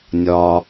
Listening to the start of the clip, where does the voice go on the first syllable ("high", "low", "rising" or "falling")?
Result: low